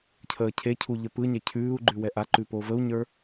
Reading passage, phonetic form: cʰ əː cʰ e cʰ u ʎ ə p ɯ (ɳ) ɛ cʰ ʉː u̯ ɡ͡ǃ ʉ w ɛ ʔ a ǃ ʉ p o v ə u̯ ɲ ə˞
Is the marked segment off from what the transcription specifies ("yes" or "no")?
yes